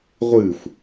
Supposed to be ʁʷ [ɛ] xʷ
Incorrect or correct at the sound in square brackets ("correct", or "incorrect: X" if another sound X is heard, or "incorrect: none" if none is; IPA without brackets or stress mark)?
incorrect: ɨ